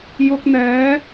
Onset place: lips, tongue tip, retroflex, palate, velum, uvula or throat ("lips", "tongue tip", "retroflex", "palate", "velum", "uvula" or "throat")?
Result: palate